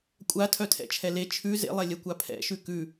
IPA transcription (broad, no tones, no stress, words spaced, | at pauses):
kʷʼatʰœtʰɛ̰t͡ʃʰɛ le t͡ʃʰʉ zḛlˠɛlʲɛkʷa pʰɛ̰ʃʉ kʉ